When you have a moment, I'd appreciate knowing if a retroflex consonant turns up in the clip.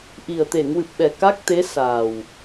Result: no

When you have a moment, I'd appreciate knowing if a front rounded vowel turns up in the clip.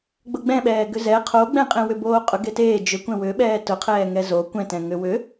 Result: yes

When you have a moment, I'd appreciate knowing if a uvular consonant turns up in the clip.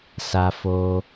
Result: no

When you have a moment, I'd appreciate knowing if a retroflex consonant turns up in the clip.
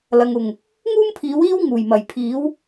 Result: no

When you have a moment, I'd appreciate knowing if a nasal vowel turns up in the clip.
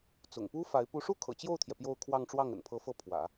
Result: no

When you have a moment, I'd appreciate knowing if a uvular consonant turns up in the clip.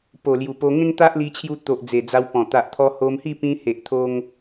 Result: no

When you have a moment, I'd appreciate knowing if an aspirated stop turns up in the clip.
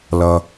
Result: no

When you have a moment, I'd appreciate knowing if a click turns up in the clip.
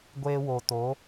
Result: no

